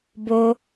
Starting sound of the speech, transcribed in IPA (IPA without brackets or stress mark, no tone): b